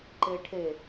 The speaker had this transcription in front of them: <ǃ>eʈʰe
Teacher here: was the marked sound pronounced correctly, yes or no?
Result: yes